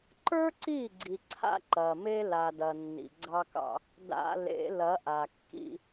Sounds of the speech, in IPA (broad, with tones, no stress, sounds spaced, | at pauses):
ǃ ə˞˦ ǀ i˦˨ ɡ͡ǀ i˨ ǀʰ a̰˦ ǃ ɐ˨ m e˦ l a˨ d ɐ˨ nː ḭ˨ ɡ͡ǀ ɑ˦ k ɑ̰˦ | d a̰˨ l ḛ˨˦ l ɐ˨˦ ʔ a˨ kː ḭ˦